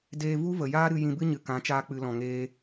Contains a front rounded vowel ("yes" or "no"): no